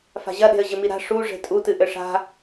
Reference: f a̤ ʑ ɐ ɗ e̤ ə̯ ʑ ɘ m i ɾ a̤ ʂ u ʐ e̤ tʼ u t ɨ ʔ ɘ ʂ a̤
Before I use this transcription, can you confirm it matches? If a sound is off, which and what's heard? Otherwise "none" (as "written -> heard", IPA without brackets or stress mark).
none